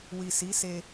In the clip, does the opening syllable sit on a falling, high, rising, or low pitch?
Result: low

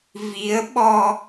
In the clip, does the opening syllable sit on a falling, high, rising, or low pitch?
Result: rising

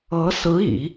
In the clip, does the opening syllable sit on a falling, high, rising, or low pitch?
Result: rising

